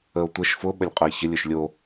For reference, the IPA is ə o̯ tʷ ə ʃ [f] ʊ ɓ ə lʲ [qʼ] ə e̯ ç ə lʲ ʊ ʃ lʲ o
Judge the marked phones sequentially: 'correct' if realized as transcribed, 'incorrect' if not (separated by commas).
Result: correct, correct